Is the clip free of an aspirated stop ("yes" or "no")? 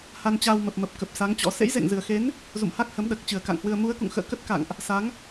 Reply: yes